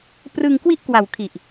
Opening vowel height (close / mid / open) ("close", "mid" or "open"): close